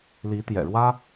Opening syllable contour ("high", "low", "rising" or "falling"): rising